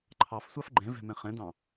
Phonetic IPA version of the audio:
ǃʰ ɑ f sʷ ɑ f ɡ͡ǃ ɛ̃ v ɛ̤ m ɛ̃ χ ɛ̃ d ɑ̃

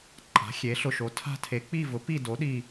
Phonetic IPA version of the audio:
ǃʼ a̤˩˥ xʲ e˩˥ ɬ ʊ˧˩ ʃ o˩˥ tʰ a̤˥˨ tʰ e˩˥ k͡p i˥˨ v ʊ˩˥ p i˥˨ d o˩˥ ɗ i˧˩

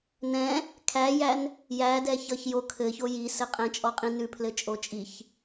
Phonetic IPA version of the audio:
n ɛ̃ | kʰ æ j æ n | j æ d ɛ ç ʌ ç j o kʰ ɘ ç o j i s ɘ qʼ ɛ̃ t͡ʃʼ ɔ qʼ ĩ n ʉ pʰ l ɘ t͡ʃʼ o t͡ʃʼ i ç

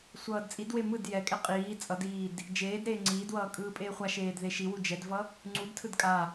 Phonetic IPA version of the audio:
sʷ ʌː d t͡sʼ i d w e m ɯ d j ɛ kʼ ɛ qʼ iː t͡sʼ ʌ d iː d | d͡ʒ eː d ɾ eː ŋ͡ǀ iː d w ʌː kʼ ɯː pʼ eː χʷ a ʃ eː d ð e ʃ i w u d͡ʒ ɛ d v ʌ | ŋ͡ǀ u d tʰ ɯ d kʼ a

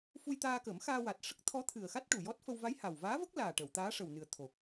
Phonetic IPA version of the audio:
f u˧ j t̪ aː˧ k ə˨˩˦ m x aː˧ w a˨˩ t̚ ʂ ə˦˥ k̚ t̪ʰ ɔ˧˥ t̪ʰ ɨ˨˩ ə̯ x a˦˥ t̚ ʈ u˨˩ j ɔ˦˥ t̚ f ə˧ w v a˧˥ j h a˨˩ w v aː˧˥ v ə˦˥ k̚ l aː˨˩ ʈ ə˨˩˨ w t̪ aː˧˥ ʂ ə˨˩ w n ɨ˨˩ ə̯ t̪ʰ o˨˩ k̚

